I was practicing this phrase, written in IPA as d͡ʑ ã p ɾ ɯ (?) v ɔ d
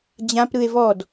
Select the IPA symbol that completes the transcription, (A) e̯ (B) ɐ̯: A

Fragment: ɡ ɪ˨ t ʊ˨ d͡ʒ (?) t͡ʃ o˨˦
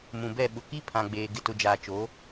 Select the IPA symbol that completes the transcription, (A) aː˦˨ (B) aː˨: B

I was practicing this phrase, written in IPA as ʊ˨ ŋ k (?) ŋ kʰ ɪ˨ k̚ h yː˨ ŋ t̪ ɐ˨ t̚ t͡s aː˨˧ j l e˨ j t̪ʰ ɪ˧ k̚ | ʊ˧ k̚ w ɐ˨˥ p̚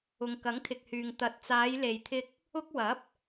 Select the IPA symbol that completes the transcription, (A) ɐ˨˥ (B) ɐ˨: A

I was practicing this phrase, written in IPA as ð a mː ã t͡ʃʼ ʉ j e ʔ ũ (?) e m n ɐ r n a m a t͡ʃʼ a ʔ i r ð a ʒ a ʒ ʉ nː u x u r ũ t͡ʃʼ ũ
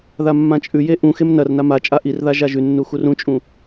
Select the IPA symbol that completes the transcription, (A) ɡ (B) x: B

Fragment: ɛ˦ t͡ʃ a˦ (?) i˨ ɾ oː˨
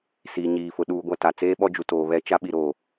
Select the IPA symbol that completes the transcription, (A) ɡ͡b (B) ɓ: B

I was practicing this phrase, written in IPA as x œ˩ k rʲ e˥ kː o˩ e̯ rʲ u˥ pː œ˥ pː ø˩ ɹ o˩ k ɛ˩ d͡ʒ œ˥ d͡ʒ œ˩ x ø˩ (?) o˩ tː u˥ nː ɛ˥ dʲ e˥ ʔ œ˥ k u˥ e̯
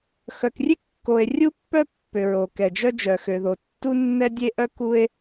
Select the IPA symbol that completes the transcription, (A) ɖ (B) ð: B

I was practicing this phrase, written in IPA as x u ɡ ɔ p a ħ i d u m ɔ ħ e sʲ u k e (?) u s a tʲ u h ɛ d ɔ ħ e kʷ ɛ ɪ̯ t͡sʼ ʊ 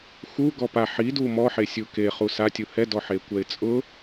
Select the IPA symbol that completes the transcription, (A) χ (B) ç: A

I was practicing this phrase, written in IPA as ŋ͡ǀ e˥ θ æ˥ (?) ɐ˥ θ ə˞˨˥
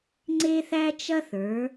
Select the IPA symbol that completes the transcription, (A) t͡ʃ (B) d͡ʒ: A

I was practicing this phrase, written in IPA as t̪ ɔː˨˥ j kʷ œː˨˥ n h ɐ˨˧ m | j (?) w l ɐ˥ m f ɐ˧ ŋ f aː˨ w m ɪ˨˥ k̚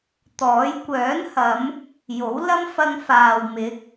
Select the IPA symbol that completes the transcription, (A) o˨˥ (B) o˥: A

